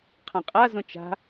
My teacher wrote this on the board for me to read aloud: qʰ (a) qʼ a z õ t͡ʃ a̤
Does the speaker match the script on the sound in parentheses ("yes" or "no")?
no